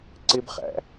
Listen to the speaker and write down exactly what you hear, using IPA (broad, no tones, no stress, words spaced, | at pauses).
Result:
ǀɪbχæ̰